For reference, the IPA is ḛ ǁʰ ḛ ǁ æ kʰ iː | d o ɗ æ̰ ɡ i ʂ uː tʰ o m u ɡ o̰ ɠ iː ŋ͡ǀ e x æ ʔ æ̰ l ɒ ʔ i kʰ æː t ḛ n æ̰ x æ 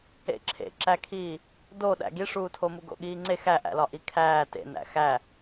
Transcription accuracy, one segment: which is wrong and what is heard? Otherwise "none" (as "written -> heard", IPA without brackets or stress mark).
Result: none